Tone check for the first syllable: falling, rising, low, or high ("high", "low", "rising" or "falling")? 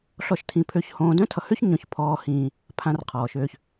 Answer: falling